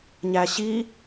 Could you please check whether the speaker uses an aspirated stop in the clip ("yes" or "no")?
no